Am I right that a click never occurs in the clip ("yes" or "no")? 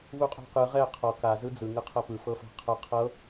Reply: yes